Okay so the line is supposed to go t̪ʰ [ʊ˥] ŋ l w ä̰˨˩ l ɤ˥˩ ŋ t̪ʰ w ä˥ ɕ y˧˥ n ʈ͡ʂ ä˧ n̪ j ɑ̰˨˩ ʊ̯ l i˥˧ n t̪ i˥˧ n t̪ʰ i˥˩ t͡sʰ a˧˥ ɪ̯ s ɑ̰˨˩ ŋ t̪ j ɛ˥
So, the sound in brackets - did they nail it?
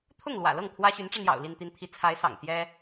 no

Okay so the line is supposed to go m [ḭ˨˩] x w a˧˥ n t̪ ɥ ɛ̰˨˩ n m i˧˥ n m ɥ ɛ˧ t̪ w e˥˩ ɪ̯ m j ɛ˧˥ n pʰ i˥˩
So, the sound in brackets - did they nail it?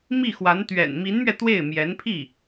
no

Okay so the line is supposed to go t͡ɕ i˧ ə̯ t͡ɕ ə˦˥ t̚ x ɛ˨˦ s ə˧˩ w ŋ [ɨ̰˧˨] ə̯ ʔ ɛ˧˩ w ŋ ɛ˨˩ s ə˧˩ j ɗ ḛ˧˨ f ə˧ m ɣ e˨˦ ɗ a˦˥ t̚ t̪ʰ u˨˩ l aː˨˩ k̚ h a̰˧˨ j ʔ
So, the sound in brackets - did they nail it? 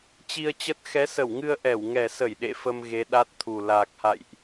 no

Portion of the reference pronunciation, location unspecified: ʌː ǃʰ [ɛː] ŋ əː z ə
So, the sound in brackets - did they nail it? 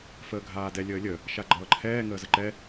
yes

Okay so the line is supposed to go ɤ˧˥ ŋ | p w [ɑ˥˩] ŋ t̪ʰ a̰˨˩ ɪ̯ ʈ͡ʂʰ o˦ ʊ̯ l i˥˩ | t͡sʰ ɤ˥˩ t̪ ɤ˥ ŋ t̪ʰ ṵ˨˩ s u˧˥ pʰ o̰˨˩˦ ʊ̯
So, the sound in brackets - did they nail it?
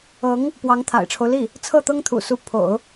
no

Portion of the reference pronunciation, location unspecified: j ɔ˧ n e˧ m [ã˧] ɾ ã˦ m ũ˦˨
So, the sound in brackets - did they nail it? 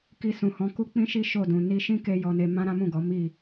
no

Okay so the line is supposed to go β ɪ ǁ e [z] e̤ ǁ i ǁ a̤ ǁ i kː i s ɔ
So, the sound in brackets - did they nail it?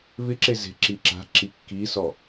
yes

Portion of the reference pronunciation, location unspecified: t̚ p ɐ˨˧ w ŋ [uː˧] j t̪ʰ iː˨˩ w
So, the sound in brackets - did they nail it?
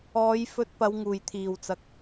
no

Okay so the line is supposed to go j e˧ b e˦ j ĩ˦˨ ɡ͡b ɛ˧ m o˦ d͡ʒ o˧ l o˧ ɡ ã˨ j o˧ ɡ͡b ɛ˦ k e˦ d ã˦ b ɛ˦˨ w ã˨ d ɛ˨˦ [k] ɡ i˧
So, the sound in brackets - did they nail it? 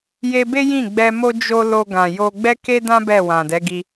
no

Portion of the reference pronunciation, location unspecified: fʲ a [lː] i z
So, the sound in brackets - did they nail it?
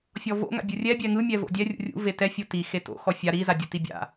no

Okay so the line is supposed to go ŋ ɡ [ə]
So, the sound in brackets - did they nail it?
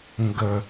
yes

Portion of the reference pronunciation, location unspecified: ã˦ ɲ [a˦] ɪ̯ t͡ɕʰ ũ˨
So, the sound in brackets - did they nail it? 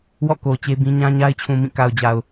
yes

